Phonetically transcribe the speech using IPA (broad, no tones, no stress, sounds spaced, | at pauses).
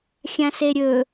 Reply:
xʲ ã s e ɾʲ ɵ